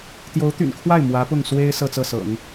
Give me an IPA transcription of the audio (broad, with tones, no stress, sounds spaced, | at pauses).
t̪ j o˧˥ ʊ̯ t̪ y̰˨˩ n kʰ w a˥˩ ɪ̯ m w ä˧˥ p ʊ˥˩ ŋ s w e˥ ɪ̯ s ɤ˥˧ t͡s ɤ˥˩ s ɤ̰˨˩˦ ŋ